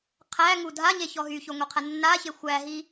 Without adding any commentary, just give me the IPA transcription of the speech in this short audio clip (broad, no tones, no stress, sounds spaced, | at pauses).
qʰ æ ŋ u dʱ a ɲ e ç ɔ ɦ y ç o ŋʷ e qʰ æ nː a ç e xʷ æ ɦ i